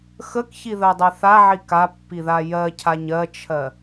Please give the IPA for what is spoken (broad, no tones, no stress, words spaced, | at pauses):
xəkçiðɜdˤɜ θaʕi kapːiða jɜcʰaɲ ɜt͡ʃʰɜ